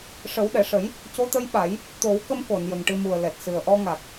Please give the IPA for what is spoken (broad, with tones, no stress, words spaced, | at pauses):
ʂə˨˩˦wɗɛ˨˩˨ ʂə˨˩˦j | co˧˥t̪ə˧˥jɓa˨˩˦j | t̪o˨˩˦w kə˧mko˨˩˨n jə˨˩ŋʈɨ˧mu˨˩ə̯ lɛ˨˩t̚sɨ˨˩ə̯ʔɔ˧ŋa˨˩k̚